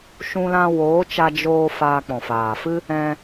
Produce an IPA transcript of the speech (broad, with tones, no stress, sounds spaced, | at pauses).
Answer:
ʃ ũ˧ l ã˧ w oː˨˦ t͡ʃ a˧ d͡ʒ oː˧ f aː˧ k͡p ɔ̃˨ f aː˨ f ɨ˦ | ɛ̃˧